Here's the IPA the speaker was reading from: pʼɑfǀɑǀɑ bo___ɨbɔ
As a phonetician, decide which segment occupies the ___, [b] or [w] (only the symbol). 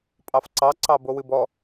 w